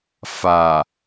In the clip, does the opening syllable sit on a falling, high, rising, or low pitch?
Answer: low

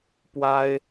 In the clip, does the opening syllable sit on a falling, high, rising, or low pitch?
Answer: high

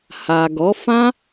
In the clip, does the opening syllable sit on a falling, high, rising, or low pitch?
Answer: low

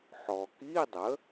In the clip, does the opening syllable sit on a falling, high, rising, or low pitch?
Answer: low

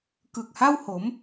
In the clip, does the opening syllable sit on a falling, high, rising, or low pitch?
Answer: low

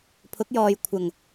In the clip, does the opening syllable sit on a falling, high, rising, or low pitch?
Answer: rising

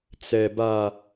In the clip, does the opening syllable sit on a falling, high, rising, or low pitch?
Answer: low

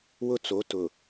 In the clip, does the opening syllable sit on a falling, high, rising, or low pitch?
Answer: high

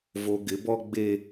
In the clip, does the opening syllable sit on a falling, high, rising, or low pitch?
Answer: low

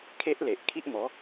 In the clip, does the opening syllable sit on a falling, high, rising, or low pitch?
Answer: high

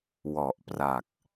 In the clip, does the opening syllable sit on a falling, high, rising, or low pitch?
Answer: low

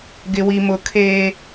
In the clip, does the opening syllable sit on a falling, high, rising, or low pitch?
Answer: low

